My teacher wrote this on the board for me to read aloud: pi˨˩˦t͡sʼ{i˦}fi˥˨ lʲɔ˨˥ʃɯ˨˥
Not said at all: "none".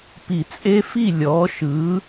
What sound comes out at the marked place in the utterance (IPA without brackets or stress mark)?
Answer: e˦